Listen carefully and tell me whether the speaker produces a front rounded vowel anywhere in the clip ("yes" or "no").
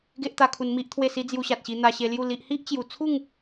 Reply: no